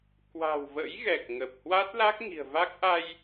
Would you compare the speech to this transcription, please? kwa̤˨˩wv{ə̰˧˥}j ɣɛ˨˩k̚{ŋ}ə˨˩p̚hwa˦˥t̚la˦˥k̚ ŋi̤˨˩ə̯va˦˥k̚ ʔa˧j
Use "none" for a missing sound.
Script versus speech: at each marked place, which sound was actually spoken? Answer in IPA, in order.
ə̰˧˥, ŋ

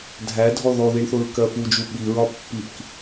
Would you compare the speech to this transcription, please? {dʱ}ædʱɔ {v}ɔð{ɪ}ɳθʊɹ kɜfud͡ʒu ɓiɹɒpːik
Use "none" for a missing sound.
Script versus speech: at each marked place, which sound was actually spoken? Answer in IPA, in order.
dʱ, ð, i

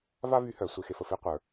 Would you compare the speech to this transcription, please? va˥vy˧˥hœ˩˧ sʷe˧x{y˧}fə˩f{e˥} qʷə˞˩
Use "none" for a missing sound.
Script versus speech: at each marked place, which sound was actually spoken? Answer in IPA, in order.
e˧, e˥

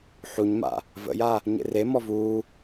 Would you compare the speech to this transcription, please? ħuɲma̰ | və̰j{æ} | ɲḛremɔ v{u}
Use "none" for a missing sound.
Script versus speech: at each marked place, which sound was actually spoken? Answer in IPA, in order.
a, uː

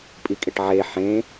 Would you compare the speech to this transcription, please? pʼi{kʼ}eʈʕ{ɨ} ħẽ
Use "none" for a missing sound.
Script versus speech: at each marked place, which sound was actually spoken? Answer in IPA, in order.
kʼ, e

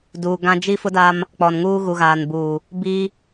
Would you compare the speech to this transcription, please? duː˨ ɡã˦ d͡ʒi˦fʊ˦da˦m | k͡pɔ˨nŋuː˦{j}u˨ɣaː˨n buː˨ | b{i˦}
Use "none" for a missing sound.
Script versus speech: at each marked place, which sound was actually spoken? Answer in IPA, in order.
ɣ, i˦

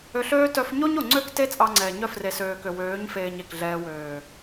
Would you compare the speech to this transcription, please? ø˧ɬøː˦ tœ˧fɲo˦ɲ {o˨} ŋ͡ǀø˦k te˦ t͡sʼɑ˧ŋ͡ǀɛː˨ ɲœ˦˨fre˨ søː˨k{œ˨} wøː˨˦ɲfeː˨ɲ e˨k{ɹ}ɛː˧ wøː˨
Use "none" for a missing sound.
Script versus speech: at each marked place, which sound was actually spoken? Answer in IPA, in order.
o˨, ø˨, ɮ

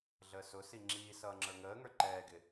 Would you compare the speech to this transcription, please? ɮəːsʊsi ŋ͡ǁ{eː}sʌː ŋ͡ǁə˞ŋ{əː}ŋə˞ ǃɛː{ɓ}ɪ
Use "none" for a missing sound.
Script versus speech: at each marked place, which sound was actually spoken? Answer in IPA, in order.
iː, əː, ɡ

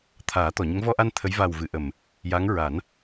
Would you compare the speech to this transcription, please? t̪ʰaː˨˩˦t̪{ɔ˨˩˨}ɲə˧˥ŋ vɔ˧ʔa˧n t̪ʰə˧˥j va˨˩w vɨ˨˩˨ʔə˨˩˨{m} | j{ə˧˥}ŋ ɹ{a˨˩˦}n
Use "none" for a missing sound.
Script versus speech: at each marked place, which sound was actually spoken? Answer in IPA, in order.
ɔ˨˩˨, m, a˧˥, a˨˩˦

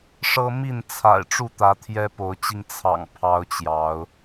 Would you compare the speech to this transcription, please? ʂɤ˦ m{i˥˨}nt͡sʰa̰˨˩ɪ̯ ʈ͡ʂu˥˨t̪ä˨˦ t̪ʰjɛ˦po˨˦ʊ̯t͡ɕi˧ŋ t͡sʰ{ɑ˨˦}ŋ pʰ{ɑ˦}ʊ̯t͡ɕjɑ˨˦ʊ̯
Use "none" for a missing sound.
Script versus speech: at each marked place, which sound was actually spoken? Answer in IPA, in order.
i˥˨, ɑ̰˨˩, ɑ˦

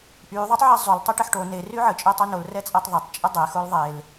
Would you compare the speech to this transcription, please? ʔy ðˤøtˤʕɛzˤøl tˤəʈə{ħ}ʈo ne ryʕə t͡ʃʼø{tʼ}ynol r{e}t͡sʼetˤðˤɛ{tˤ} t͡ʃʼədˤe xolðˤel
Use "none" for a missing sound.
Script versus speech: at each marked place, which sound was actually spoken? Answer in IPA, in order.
ħ, tˤ, ɛ, tˤ

